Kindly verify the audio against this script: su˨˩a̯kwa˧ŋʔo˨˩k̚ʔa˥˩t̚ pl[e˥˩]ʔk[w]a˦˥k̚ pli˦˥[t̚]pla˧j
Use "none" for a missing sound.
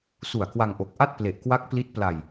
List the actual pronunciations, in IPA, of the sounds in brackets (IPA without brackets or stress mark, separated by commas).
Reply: e˨˩, w, t̚